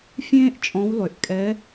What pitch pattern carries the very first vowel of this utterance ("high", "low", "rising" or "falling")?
high